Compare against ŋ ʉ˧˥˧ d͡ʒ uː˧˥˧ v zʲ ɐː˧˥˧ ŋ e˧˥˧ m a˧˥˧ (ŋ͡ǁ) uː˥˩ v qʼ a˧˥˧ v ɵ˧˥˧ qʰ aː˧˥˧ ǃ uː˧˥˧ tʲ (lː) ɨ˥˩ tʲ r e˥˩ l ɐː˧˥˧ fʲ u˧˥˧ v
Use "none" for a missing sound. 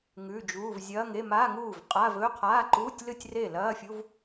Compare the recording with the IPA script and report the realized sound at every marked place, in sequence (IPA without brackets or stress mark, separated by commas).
ŋ, l